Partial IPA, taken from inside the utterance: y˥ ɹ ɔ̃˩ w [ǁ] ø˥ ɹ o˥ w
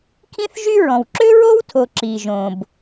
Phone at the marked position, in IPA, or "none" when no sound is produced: ǁ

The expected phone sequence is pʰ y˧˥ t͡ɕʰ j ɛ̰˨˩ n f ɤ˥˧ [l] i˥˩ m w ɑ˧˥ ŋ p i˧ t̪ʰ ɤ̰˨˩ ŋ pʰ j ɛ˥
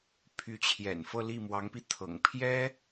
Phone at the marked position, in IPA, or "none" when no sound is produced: l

